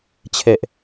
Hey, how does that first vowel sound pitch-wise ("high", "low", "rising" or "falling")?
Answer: low